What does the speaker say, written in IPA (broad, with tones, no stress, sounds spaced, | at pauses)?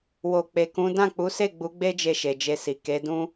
w o˨ k͡p e˨ k ũ˨˦ d ã˦˨ k͡p u˨˦ s e˦˨ ɡ͡b u˨˦ ɡ͡b e˦ d͡ʒ e˦˨ ʃ e˨ d͡ʒ e˧ s i˨ k e˨˦ d ũ˦